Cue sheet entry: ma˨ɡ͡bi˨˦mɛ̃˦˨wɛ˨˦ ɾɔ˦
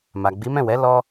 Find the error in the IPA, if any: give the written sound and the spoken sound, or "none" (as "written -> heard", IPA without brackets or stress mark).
ɾ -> l